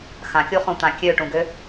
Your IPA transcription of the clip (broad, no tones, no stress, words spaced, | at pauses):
xãkʲuχũt̪ã kʲøʈũɡø